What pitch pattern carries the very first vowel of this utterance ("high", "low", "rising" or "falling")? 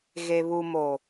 low